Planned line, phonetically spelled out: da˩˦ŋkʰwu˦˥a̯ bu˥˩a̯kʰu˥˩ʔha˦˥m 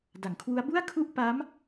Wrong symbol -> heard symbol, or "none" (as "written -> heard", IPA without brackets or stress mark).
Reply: h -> p